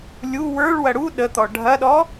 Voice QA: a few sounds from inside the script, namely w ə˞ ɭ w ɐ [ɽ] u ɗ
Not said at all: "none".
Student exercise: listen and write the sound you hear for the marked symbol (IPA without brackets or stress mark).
ɽ